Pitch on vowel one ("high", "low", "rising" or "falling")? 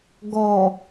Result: low